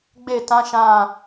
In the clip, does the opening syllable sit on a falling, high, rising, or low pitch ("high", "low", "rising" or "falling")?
falling